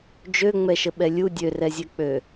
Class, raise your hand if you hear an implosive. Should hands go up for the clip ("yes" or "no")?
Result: yes